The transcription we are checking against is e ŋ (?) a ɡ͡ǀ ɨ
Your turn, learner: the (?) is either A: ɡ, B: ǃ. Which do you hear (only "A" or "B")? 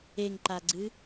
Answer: B